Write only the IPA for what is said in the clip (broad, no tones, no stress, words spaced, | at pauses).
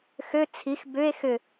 xø t͡sʰix bʏe̯ xʏ